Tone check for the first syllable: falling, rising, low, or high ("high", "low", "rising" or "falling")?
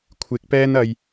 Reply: rising